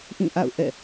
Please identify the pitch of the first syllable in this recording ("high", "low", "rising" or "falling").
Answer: falling